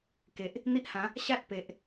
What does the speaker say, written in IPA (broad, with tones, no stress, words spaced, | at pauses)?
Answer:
ke˨ʔ | n̪i˦ʔhã˨˦ | ɕa˦t̚pe˨ʔ